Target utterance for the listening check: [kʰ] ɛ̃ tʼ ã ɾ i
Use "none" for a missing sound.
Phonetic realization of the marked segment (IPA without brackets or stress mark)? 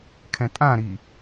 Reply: kʰ